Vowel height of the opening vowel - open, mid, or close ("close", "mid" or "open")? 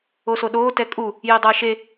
mid